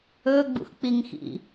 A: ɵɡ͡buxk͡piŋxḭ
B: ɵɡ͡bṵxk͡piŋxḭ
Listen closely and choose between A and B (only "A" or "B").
B